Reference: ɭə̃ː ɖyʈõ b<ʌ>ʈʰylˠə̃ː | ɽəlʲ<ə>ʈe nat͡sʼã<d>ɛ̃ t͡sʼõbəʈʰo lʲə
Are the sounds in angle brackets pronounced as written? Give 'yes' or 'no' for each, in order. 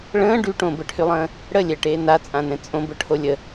no, no, no

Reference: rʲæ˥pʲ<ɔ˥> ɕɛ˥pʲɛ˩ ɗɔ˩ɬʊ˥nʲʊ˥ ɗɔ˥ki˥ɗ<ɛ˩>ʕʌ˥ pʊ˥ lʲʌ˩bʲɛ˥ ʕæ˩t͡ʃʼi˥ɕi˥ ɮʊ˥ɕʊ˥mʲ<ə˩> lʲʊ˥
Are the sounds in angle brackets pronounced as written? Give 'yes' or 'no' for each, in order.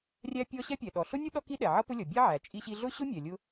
yes, yes, no

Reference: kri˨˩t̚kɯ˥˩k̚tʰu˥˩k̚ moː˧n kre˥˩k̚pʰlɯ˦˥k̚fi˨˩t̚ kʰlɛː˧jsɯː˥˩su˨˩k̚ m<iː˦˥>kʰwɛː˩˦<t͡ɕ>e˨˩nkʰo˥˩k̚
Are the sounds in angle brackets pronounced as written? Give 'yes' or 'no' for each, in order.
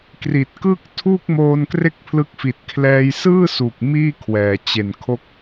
no, yes

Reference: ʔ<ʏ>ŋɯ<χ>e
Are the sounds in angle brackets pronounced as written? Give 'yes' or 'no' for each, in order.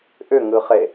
yes, yes

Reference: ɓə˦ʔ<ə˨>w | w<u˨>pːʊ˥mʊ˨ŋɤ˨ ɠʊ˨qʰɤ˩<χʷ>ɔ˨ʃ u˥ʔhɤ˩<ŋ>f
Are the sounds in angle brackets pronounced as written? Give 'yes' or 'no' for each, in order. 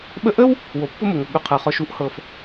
no, no, no, no

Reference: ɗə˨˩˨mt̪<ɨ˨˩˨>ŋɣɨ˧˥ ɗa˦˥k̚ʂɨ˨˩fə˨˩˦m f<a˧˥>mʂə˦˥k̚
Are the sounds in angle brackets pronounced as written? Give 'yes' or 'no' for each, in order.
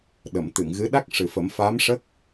yes, yes

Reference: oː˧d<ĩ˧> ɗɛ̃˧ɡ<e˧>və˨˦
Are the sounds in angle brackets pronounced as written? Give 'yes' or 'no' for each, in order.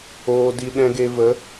no, yes

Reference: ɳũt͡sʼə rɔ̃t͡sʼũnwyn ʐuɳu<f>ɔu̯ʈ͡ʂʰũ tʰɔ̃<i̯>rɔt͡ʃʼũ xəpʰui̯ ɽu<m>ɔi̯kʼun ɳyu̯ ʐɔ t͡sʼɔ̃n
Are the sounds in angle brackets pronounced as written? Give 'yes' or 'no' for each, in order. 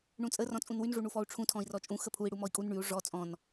yes, yes, yes

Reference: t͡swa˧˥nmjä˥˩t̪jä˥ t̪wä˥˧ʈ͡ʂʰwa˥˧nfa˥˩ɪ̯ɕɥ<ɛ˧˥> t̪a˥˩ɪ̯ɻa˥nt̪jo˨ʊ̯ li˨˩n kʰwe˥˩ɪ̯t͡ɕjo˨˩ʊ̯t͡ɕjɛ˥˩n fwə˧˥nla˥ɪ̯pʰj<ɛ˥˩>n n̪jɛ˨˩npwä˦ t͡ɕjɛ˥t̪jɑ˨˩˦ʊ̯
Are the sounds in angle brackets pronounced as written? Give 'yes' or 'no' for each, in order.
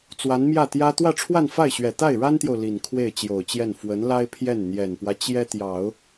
no, yes

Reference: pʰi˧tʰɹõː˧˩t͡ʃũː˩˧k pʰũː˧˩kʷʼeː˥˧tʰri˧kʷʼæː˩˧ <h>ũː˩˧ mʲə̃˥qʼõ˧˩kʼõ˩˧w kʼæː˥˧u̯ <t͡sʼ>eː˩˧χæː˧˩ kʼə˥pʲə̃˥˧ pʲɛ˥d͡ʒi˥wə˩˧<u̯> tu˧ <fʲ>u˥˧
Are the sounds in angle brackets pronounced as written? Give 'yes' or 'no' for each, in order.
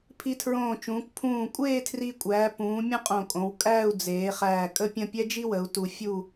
no, no, yes, yes

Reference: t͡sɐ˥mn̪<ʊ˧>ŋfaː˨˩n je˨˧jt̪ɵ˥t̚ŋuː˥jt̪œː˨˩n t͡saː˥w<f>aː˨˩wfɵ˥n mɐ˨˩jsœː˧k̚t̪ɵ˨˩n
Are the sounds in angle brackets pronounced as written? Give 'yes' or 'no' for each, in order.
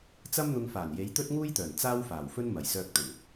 yes, yes

